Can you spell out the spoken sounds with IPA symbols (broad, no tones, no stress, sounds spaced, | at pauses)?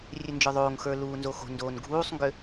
rʲ ø n d͡ʒ ə˞ ðˤ oː ŋ x ə˞ l uː n z o x o̤ n d oː n ɡʱ uː sˤ ŋ ɡ ø